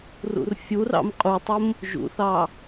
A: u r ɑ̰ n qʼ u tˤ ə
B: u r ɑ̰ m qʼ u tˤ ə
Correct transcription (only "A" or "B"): B